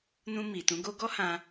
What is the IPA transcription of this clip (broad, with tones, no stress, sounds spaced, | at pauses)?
n ũ˧ m i˨ t ũ˨˦ ɡ o˦ ɡ ɔ˦ h ã˧